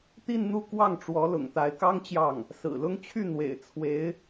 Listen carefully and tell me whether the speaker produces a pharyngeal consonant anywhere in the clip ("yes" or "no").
no